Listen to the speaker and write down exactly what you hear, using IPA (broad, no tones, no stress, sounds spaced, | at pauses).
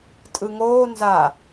tʼ ɯ ŋ oː n z a